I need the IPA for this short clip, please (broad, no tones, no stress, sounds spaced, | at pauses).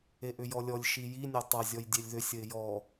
e ʔ ʏ j ɔ lʲ ɔ lʲ ʃ i j i nʲ ɐ tˤ ɐ zʲ ɔ j dʲ e lʲ ð ʏ sʲ ə ɪ̯ j ɔ